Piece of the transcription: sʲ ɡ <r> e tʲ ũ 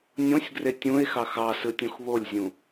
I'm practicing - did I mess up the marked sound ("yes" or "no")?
no